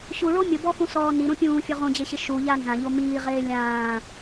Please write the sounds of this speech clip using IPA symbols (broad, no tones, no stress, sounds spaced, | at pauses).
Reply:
ɕ u ɭ o mʲ ʊ b ɔ x ũ s ɔː n i ɾ ũ pʲ ũː fʲ ʊ ʁ ũ d͡ʑ e ɕ ɪ ʃ u ʎ a n z ã ʎ o m iː ʁ eː lʲ ãː